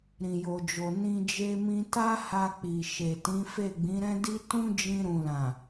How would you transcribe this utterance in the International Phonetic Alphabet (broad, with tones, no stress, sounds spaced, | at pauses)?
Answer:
ɾ ĩ˨ j o˨ d͡ʒ o˨ n ĩ˧ d͡ʒ e˧ m ĩ˧ t a˦ h a˧ k͡p i˨ ʃ e˨ t ĩ˨˦ f e˦˨ ɡ͡b ĩ˨˦ ɾ ɛ̃˦ d i˦ t ũ˦ d͡ʒ ĩ˧ ɾ ũ˨ l ã˨